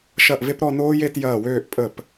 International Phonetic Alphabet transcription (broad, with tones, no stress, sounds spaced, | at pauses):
ʃ ɐ˥˩ ʔ v e˥ p ɾ ɔ˥˧ n oː˥ j e˥˧ t j ɐː˥˩ w øː˥˧ ʔ pʼ ə˥˩ p